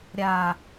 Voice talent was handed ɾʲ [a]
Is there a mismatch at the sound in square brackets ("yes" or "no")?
no